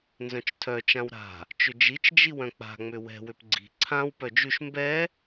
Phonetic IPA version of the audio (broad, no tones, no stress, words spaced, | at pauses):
nzœ̃t͡ʃtʰœ t͡ʃãwɾa̤ | t͡ʃʏd͡ʒit͡ʃ d͡ʒiwœ̃k͡pa̤ ŋ͡mʏwɛ̤ wʏpɡ͡ǀi̤ ǀʰãw pœd͡ʒʉʃ mbɛ